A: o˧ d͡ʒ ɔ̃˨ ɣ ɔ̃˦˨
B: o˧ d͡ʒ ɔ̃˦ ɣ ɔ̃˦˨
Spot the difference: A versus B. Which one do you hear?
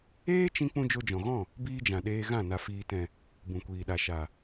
A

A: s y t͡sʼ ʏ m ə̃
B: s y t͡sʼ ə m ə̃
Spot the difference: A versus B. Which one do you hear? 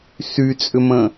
A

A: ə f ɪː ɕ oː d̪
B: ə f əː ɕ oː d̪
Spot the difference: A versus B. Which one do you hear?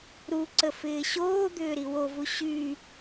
A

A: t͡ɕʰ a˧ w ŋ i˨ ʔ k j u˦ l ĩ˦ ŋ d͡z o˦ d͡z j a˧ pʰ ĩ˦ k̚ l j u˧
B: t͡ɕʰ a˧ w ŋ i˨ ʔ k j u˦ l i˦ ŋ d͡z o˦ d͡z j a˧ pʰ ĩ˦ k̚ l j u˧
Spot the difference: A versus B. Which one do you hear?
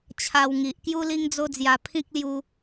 B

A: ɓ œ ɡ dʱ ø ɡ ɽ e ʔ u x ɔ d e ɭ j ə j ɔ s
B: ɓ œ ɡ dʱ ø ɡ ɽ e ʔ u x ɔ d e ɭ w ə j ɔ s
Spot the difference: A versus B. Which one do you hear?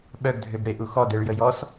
A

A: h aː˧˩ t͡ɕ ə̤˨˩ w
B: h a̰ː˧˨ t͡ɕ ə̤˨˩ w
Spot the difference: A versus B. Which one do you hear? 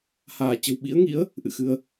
A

